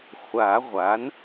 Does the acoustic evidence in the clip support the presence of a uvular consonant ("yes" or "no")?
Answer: yes